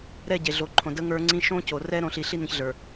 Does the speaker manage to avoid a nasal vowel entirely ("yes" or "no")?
no